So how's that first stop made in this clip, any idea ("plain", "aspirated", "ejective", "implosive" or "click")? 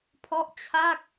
aspirated